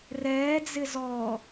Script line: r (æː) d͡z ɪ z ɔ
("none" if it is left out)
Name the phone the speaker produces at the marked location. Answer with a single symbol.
ɛː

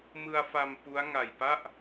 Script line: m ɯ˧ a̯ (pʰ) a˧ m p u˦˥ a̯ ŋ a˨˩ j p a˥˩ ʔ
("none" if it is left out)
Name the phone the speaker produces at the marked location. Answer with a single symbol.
f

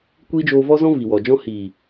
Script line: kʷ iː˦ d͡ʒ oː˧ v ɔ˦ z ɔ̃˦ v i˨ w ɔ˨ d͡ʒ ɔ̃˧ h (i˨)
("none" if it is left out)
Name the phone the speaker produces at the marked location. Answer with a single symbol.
iː˨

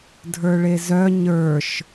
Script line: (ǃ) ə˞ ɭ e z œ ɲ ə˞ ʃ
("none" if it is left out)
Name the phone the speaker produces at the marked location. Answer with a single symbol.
dʱ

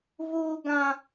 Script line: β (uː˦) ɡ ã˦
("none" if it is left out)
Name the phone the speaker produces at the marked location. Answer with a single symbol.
uː˦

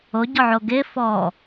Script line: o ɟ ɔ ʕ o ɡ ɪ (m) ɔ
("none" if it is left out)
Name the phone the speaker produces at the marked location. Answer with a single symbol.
f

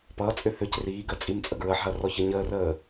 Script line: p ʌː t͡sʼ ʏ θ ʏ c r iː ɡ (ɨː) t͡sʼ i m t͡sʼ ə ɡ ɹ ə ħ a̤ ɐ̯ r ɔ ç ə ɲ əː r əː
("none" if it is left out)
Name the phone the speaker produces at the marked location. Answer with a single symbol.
əː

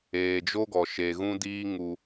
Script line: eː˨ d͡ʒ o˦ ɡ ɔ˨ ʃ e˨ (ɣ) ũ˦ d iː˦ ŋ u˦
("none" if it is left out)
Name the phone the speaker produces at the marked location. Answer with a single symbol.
ɣ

